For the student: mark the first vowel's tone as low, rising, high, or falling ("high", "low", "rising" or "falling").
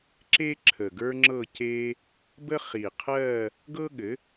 high